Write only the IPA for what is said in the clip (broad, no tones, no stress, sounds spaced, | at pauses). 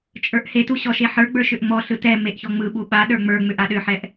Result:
t͡ʃʼ ə˞ ʔ h e t u ɕ ɔ ʃ e ħ ə˞ ɡ͡b ə˞ ʃ ʏ ʔ ŋ͡m ɔ ɬ ɯ t ɛ m e ʔ ç ɔ ŋ͡m ɯ ɓ u ɓ a ɗ ə˞ ŋ͡m ə˞ ŋ͡m ʏ ʔ a ɗ ʏ ħ ɛ ʔ